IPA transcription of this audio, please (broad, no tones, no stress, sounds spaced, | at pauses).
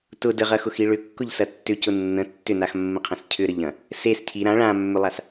t ʊ d ə ʁ ɐ x ʊ x i ɭ ʏ kː ʊ ʎ s ɐ tː ʏ c ʊ nː ə̃ tː ʏ n a x mː ə̃ qʰ ɐ̃ s cʰ ʏ ɾ ə ʎ ɐ̃ | s e s cʰ i ɾ ã ɭ ã mː ʏ lˠ a s